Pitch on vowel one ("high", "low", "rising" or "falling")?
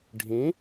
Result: rising